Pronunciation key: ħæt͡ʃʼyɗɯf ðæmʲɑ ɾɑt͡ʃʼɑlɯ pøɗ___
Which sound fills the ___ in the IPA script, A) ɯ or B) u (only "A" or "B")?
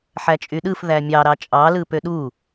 B